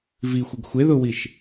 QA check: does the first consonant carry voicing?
yes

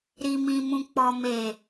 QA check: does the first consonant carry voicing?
yes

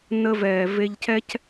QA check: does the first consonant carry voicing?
yes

